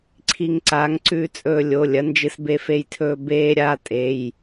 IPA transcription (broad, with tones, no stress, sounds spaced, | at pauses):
ǀʰ i˧ ŋ ǀ a˨˥ ŋ ǀ ʉ˧ t͡sʼ ɵː˧ lʲ o˩˧˩ lʲ ɐ˨˥ n d͡ʒ ɨ˧ s b e˧ f e˧ j tʰ ɵː˧ b eː˧ ɾʲ a˩˧˩ tʼ e˩˧˩ j